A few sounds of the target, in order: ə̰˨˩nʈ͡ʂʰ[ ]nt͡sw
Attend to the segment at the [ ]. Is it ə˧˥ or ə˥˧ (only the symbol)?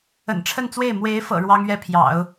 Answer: ə˥˧